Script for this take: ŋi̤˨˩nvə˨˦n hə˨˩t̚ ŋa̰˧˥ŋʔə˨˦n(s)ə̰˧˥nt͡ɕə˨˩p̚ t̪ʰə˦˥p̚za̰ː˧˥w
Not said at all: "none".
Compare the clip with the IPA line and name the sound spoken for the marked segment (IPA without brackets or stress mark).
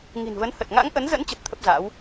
z